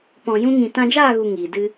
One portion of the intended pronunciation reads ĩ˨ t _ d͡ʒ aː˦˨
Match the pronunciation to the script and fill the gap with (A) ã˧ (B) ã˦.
A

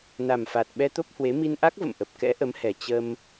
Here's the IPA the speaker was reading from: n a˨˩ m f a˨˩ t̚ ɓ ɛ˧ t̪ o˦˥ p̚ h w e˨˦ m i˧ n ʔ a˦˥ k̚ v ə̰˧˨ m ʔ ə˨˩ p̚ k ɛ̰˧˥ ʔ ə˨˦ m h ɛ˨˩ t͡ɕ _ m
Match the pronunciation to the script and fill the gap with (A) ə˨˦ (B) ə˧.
B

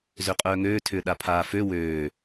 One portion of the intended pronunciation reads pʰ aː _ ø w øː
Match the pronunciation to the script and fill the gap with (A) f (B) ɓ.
A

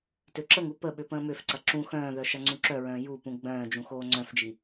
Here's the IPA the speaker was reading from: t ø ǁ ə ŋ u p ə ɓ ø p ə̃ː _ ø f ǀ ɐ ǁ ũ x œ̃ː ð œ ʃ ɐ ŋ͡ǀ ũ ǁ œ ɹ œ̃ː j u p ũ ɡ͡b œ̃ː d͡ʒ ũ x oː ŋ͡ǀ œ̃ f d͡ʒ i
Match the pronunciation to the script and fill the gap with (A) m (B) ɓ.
A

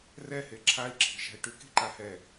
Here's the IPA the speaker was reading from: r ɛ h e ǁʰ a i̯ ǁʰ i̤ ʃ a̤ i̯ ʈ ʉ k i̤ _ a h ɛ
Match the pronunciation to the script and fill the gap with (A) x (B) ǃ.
B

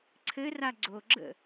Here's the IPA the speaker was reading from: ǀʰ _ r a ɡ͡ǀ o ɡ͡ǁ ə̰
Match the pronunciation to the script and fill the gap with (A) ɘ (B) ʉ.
A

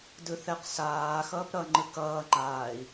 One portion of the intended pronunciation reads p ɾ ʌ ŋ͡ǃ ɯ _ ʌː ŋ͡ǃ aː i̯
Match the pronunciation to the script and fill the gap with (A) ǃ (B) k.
B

